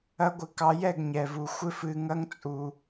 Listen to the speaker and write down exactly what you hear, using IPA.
ɐ˦ ɡʷ ɪ˧ k ɑ˧ j ɛ˦˨ ɡ ɲ ɛ˨ v u˨ xʷ ɪ˦ f ɨ˧ ŋ ɐ˦ ŋ t͡sʼ u˧

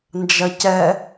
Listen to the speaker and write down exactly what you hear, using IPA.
n d͡ʒ ɐ c ɛ

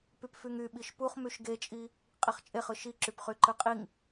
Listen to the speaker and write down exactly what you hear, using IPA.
p y p f y ŋ y ɓ i ʃ p u χ m y ʃ ɡ e t͡ʃʼ i | qʼ i χ t͡ʃʼ e χ ɯ ʃ i ǁ y p χ y ǃ ɯ qʼ i ŋ

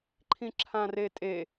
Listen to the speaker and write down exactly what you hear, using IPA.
ǃʰ ĩ ǁʰ ã r e tʼ e

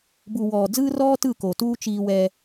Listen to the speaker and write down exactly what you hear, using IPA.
b u˨ w ɔː˨ d͡z ɯː˦ r ɔː˦ t ɯ˦˨ k o˨ t uː˦ t͡ʃ iː˦ w ɛ˦

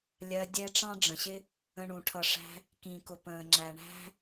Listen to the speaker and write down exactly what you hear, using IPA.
lʲ ɜ˧ dʲ ɛ˦ ʈ͡ʂ ɑ̃˦ ɖ͡ʐ ə̃˨ ɕ ɪ˦ | ə̃˧ ɳ ũ˨ ʈʰ ʌ˨ ʂ æ̤˧ | k ĩ˨ k ʊ˨ p ə̃ː˨ ŋ͡ǁ æ˨ ɳ æ̤˦

